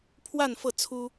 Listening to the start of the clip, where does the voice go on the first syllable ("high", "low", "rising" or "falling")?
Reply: falling